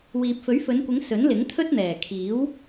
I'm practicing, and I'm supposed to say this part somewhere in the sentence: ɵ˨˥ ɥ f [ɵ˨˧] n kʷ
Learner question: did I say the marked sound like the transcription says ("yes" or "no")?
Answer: yes